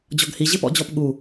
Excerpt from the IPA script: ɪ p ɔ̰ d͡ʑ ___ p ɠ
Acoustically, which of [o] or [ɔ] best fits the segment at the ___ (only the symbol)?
ɔ